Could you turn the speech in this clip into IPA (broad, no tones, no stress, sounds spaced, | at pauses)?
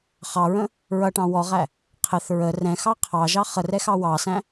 χ ɑ ɹ ə̃ | ɹ ʌ ʈ ɑ̃ w ɔ ʁ æ | qʰ ɪ θ ɹ ə r ɛ̃ x ɑ qʰ ɑ ʒ ɑ χ ə r ɛ x ɑ w ɑ s æ̃